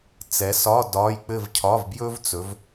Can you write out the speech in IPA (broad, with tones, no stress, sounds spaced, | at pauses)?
t͡s ɛ˨˦ s ɒ˧˥˧ d ɒː˧˥˧ j k͡p ɘ˥˧ v cʰ ɒ˧˥˧ v b j ɵ˥ v t͡s ɵ˨˦ v